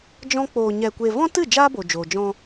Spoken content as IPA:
d͡ʒ ɔ̃˦ k͡p oː˧ ɲ ɛ˧ kʷ e˧ v ɔ̃˦ t ɨ˦˨ d͡ʒ aː˦ b o˨ d͡ʒ oː˨ d͡ʒ ɔ̃˧

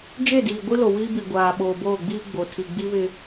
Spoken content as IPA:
d͡ʒ e˦˨ d iː˨ ɡʷ i˦ l o˨ w iː˦ b i˨ ɡʷ aː˨ ɓ oː˨ b oː˦˨ ɡ͡b iː˦ ɡ͡b o˨ tʰ i˨ ɡ͡b i˦ β ɪ˦

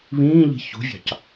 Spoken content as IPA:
β ĩː ʎ i̤ ç ṳ vʲ ɑ̤ c

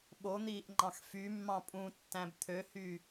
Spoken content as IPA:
ɓ o n̪ iː ʔ ŋ͡ǃ ɑ̃ x f y mː ɑ̃ pʼ ũ tː æ̃ b t̪ʰ ø h y

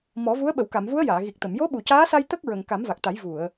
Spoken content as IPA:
m ɔ˨˩˦ v u˧˥ ə̯ ɓ ə˨˩˨ w k a˨˩˨ m v u˧˥ ə̯ j aː˨˩˨ ɣ i˨˩ k̚ t̪ ə˨˩˨ m j o˧˥ ɓ u˨˩˨ c aː˧˥ s a˧ j t̪ ə˦˥ k̚ ɹ ə˨˩˨ ŋ k a˨˩˦ m v a˨˩ k̚ t̪ a˨˩˦ j v u˨˩˨ ə̯

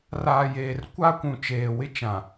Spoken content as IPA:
r aː˨ j eː˨ r kʷ a˦ kʷ ũ˨ t͡ʃ eː˨ w ɪ˦ t͡ʃ ã˨

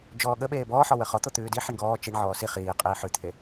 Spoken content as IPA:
d͡ʒ ɔː ɠ ə ɓ eː b ɔː ħ ɔ w ə χ ɔ t̪ o t̪ ʉː d i ħ i ɳ ɡ ɔː t͡ʃ i ɳ ʕ ɔː s i χ iː qʼ iː ħ ʉ t̪ʰ e

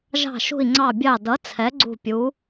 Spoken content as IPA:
ʒ ɑ̤˦˨ ʃ ṳ˦˨ i̯ ŋ͡ǀ ɑ˦˨ bʲ ɑ˦˨ d ʌ˨˥ t͡sʰ ɛ˨˥ ɡ͡ǀ ṳ˦˨ pʲ u˨˥

